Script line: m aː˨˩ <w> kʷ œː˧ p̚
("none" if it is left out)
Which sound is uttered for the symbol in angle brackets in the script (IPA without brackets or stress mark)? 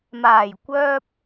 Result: j